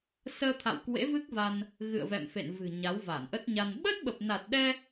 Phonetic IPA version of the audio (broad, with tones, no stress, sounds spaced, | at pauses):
s əː˧ t̪ʰ a̰˧˨ w k w ḛ˧˥ v ɨ˦˥ k̚ v a˧ n | ɣ ɨ̰˧˨ ə̯ v ɛ̰˧˨ m f ḛ˧˨ n v ɨ̤˨˩ ɲ a˨˦ w v a˧˩ n ʔ ə˦˥ t̚ ɲ a˧ n ɓ ə˦˥ t̚ ɓ ə˨˩ p̚ n a˨˩ t̚ ɗ ɛ˧